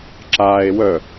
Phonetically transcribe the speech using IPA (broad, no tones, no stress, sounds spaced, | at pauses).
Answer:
ǁ aː e̯ w œ